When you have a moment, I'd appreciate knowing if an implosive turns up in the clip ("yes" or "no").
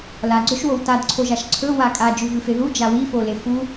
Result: no